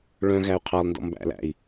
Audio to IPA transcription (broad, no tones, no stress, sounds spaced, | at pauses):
ɭ œ̃ ɣ æ u̯ qʰ ɑ lˠ n d ɔ̰ m b æ̰ l æ̰ i̯